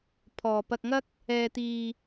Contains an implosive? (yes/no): no